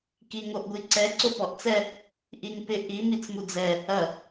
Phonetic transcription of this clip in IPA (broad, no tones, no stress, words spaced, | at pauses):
kiŋoʔɡʷiǀɛ ǀopɔʔt͡sɛ | ʔiŋpɪ ʔi mit͡smud͡zɛ | ɐ